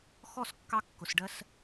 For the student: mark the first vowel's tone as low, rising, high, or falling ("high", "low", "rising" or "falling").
falling